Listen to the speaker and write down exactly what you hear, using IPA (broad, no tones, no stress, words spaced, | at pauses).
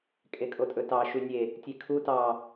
kʼekʼotʼɵtɑ ʃʉnʲe | tʲekʰu tɑ